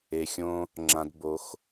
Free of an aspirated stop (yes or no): yes